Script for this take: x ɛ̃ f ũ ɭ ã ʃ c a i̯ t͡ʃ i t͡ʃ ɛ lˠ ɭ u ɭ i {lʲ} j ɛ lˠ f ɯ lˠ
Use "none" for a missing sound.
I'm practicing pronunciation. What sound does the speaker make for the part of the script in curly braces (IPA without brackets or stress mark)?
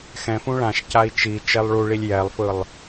lʲ